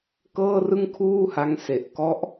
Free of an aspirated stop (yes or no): no